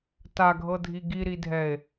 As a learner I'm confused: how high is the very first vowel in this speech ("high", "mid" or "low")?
low